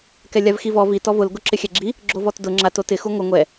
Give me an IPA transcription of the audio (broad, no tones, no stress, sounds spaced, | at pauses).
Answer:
k ɛ lʲ a v x i v ɔ v i t ɔ v ʊ l ɡ ʊ ǁ ɪ xʲ ɛ ɡ͡ǁ i | ɡ͡ǁ o v ɔ t d ʊ ŋ͡ǁ a t o t ɪ x u ŋʷ ɪ ŋʷ ɛ